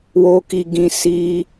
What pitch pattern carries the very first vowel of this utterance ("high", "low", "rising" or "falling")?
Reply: high